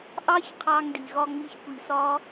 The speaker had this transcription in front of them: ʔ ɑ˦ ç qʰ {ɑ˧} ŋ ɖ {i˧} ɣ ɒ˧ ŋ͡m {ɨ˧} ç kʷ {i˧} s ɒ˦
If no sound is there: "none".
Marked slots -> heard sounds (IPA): ɑ˧, i˨, i˧, i˧

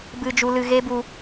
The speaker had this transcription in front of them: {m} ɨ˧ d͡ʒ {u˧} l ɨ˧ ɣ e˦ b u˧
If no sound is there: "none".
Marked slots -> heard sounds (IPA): b, u˧

